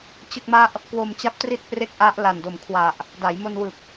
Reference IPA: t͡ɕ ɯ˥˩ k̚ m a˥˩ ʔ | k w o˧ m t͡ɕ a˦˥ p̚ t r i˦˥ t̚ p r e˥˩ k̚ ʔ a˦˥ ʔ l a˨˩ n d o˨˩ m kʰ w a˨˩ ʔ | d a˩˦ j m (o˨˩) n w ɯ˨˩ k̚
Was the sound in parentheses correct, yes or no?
no